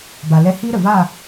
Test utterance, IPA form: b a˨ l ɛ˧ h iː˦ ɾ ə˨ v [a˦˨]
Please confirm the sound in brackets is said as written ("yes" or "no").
yes